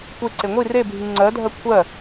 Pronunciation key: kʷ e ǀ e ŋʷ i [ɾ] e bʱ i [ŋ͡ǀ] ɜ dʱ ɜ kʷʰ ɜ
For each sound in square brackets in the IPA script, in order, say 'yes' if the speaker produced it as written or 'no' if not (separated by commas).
no, yes